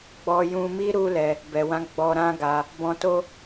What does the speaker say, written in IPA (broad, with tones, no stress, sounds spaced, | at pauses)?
ɡ͡b ɔ˧ j ũ˧ m i˦ ɾ u˦ l ɛ˧ | b ɛ˨ w ã˨˦ ɡ͡b ɔ˧ ɾ ã˦ ɡ a˧ | b ɔ̃˧ t o˦